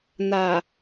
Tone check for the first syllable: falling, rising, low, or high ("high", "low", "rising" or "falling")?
low